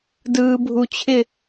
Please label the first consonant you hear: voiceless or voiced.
voiced